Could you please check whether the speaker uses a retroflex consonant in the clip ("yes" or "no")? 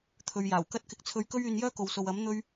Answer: no